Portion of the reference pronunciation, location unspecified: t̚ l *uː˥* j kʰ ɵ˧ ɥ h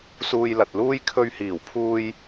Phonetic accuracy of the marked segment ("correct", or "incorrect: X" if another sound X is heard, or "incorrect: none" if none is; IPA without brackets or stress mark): correct